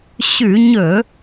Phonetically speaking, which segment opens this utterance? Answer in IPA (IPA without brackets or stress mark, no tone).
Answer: ɕ